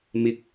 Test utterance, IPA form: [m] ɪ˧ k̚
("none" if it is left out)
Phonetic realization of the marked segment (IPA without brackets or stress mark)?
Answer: m